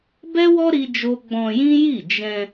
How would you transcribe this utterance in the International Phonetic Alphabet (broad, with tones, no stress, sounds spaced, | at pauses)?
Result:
b ɛ˦ w ɔ˦ ɾ i˦ d͡ʒ o˦ ɡ͡b ɔ̃˧ j ĩ˦ j i˦˨ d͡ʒ ɛ̃˧